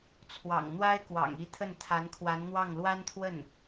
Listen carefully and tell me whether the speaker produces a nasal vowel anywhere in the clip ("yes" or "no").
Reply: no